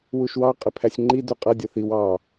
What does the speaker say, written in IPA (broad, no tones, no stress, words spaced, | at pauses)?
wuʃwɑ qʼɪpʰæsʲŋ͡ǃi duqʼʌ dʲʌθiw ɑ